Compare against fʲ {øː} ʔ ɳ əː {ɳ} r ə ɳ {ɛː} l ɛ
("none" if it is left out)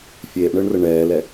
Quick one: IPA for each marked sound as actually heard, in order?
eː, ɳ, ɛː

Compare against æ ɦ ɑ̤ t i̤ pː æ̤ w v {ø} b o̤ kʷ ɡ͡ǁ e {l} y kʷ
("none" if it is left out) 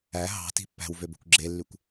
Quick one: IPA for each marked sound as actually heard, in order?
ø, lː

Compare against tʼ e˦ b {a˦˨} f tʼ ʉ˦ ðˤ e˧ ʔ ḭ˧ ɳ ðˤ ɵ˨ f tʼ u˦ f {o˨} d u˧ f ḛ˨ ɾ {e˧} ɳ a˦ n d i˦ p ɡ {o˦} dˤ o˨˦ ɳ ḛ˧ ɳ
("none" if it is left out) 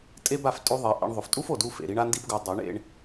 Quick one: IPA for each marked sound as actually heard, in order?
a˦˨, o˨, i˧, o˧

